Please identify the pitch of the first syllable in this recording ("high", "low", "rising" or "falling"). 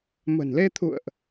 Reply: low